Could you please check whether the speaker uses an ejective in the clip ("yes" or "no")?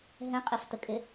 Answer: yes